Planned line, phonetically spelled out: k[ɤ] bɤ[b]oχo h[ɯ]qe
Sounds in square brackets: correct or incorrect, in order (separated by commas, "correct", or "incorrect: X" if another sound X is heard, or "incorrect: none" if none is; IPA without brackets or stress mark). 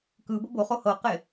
incorrect: ɯ, correct, incorrect: ɤ